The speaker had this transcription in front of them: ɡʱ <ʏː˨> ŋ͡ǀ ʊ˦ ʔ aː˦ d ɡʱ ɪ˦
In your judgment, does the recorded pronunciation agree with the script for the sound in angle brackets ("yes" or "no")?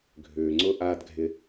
yes